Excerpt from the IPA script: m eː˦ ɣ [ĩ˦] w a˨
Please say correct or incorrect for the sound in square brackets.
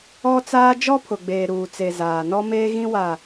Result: correct